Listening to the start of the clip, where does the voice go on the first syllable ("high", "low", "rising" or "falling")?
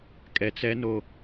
low